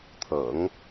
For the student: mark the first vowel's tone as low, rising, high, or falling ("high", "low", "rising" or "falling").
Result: low